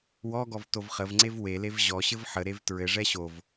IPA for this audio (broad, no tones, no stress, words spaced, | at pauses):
wɔɡɔv tovχəvŋ͡ǀev welev ʑɔɕɘv ħəɾev tɹɘʐɛ ɕov